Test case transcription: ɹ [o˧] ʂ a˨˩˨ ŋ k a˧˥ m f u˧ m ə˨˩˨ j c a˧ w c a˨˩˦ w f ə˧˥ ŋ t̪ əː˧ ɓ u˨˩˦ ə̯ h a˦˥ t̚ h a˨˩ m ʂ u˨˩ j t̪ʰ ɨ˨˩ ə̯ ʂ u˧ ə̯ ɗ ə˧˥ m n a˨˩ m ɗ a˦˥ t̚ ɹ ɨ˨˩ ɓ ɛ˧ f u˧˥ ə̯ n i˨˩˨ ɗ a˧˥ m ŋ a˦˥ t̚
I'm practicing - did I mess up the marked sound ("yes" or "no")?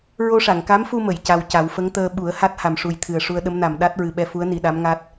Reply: no